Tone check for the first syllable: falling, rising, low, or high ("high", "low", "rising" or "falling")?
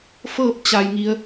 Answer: falling